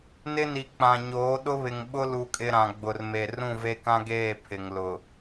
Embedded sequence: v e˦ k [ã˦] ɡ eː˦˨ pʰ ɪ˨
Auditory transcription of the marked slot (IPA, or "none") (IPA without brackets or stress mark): ã˦